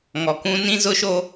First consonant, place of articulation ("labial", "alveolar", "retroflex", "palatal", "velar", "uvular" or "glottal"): velar